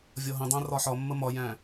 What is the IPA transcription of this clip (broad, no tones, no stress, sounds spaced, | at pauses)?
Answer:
vʲ ɒ ɦ ə̃ dˤ æ̃ r ɒ ħ ɒ mː ə m ɒ j æ̃